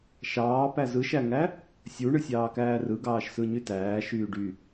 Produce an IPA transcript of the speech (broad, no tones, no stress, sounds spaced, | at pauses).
ʃ ɑː p æ z ɯ ʃ æ ŋ æ | sʲ u ɳ ɯ sʲ ɑː k æː r ɯ ɡ ɑː ʃ s ɯ ɲ y t æː ʃ yː ɖ y